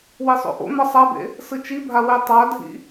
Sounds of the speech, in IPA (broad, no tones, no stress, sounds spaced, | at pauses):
w i sˤ o̰ ʔ o̰ n̪ ʌ sˤ a b ḛ | s ɯ t͡ʃ i bʱ a w e tˤ a dʱ ḭ